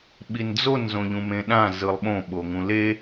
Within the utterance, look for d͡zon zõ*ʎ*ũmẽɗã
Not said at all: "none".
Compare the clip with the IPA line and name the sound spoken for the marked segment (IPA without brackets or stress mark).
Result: ʎ